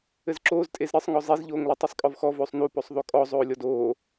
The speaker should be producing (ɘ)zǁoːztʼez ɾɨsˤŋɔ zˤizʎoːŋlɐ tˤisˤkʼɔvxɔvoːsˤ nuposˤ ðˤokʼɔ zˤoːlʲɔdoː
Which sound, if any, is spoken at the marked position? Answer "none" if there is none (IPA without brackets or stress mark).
ɘ